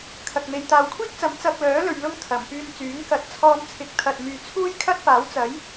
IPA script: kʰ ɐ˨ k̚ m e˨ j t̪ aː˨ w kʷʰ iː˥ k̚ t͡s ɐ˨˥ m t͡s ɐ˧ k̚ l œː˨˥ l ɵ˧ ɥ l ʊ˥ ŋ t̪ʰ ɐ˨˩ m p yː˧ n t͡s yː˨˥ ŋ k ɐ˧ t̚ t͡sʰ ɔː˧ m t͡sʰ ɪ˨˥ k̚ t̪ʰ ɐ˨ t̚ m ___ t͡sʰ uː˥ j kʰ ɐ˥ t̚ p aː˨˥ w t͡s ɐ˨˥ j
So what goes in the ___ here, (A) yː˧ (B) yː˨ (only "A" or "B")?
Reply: B